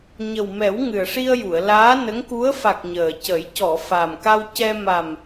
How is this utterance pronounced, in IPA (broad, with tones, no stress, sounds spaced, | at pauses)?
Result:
ɲ ə˨˩ w m ɛ˨˩˦ w ŋ ɨ˨˩ ə̯ ʂ i˧ ə̯ j u˨˩˨ ə̯ l aː˧˥ n ə˧˥ ŋ k u˧˥ ə̯ f a˨˩ k̚ ɲ əː˨˩ c ə˨˩˦ j c ɔ˨˩˨ f a˨˩ m k a˧ w c ɛ˧ m a˨˩ m